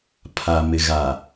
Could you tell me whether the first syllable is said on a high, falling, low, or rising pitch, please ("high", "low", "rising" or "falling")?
low